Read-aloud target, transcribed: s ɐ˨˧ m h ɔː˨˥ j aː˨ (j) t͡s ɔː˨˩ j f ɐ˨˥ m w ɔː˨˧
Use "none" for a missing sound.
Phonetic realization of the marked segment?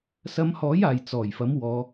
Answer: j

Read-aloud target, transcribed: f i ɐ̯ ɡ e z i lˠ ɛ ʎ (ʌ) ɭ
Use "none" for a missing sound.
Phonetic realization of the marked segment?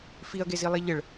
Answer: ə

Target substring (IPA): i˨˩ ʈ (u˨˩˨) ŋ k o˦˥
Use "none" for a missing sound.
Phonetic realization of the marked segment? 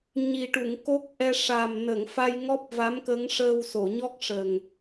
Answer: u˨˩˨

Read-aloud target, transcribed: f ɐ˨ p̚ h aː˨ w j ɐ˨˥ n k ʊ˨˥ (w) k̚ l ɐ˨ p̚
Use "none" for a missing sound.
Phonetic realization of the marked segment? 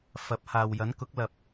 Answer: none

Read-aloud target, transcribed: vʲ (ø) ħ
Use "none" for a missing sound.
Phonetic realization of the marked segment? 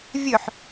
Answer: ɵ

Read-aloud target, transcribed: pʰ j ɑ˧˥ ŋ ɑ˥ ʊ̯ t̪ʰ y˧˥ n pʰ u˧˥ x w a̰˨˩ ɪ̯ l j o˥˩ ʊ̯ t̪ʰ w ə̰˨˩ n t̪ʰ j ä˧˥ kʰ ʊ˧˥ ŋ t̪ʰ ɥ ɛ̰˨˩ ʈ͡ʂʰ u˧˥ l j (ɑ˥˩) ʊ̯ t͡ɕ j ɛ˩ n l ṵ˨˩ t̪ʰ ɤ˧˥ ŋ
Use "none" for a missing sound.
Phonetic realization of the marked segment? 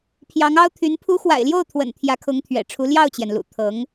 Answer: ɑ˥˩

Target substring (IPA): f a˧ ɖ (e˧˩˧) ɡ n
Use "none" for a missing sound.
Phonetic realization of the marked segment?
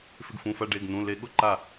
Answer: e˩˧˩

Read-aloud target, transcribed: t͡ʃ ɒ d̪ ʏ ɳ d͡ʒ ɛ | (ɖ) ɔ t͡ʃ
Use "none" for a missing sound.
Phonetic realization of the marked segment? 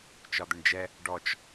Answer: ɖ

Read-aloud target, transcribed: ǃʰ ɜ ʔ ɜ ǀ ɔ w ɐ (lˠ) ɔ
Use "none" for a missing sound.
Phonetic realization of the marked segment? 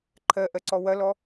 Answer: l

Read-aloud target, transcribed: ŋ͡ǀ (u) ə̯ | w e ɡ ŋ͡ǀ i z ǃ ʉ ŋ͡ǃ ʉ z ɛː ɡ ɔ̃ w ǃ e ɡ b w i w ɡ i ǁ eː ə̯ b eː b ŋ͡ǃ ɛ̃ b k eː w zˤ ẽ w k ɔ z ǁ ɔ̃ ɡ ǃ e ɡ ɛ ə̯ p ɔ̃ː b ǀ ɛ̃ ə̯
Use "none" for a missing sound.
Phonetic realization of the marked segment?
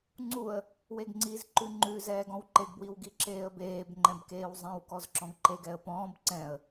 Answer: u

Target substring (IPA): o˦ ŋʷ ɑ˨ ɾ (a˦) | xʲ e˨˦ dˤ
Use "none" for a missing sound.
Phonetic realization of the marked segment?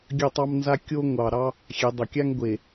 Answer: ɑ˦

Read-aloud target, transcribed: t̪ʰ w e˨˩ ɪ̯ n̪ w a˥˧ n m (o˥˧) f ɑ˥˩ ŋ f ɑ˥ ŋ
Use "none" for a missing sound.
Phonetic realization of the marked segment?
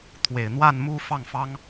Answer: u˥˧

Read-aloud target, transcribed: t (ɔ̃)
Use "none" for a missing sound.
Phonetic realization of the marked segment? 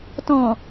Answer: ɔ̃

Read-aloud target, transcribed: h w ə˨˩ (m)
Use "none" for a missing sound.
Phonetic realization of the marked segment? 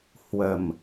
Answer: m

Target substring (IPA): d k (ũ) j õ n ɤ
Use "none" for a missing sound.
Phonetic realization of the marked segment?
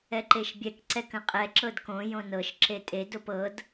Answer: õ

